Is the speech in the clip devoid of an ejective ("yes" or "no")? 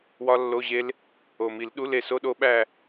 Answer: yes